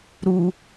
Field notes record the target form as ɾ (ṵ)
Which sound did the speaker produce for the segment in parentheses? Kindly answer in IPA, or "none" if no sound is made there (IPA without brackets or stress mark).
u